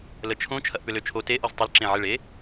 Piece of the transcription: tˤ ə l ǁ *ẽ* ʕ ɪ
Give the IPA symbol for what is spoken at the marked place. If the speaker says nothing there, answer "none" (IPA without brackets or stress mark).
ẽ